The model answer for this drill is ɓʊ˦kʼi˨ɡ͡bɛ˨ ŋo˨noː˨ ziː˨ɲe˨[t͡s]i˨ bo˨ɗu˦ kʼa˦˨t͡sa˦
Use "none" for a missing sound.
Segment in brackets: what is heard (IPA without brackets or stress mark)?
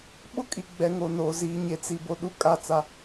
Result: t͡s